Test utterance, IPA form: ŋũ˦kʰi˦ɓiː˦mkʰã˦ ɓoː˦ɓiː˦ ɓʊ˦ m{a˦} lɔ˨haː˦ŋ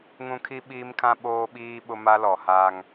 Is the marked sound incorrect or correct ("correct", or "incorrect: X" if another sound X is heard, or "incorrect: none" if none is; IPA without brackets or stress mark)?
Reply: correct